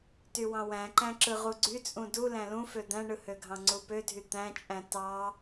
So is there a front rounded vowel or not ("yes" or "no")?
yes